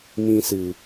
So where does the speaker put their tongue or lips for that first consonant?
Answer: lips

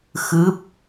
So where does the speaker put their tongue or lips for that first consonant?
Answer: velum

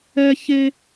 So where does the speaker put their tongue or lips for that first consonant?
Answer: palate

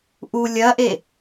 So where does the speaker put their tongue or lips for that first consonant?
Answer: throat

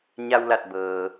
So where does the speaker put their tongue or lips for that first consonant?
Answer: palate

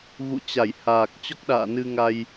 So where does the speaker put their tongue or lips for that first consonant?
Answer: velum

